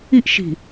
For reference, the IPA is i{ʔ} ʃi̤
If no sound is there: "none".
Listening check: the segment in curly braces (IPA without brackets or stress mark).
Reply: ʔ